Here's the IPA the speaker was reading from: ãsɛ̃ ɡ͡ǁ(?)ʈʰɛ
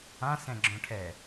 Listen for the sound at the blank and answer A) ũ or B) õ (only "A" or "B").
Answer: B